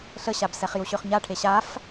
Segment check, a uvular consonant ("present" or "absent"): present